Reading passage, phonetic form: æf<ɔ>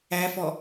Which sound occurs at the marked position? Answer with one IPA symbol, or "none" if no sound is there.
ɔ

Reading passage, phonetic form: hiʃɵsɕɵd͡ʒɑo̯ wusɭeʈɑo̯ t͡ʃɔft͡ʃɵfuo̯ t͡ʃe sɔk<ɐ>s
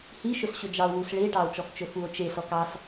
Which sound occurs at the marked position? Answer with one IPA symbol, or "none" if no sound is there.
ɑ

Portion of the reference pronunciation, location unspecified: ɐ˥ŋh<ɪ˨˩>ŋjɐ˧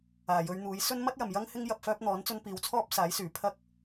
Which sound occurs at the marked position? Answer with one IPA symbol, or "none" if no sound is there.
ɪ˥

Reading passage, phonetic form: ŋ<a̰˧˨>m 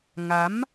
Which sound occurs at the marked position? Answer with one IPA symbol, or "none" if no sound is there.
a˨˦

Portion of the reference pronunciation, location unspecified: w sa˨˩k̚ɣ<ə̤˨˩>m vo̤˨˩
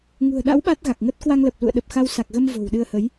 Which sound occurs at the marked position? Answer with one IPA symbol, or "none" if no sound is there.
ə˧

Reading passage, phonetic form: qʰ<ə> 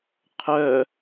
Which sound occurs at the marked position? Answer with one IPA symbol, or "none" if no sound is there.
œ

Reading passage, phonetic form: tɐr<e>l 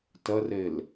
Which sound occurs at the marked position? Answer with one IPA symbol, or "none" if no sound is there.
e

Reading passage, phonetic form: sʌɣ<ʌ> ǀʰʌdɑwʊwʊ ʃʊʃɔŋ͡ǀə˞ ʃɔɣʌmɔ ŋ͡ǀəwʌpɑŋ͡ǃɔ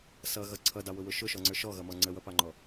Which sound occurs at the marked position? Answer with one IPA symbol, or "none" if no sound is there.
ʌ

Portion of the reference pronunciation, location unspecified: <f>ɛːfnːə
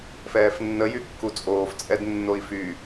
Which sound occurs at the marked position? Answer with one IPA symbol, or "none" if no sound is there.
f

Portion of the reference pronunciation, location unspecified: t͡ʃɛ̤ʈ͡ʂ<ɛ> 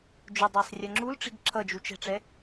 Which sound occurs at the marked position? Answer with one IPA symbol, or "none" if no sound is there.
ɛ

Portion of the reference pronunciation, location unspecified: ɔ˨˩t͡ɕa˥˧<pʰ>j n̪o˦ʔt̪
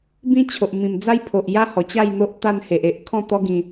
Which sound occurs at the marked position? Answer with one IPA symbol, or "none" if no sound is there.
none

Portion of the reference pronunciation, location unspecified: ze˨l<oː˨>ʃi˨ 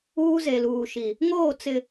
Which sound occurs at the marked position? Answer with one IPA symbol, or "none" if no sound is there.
uː˨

